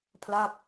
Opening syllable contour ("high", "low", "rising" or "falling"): falling